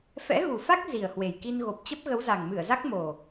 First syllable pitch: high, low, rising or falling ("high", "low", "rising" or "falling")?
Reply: rising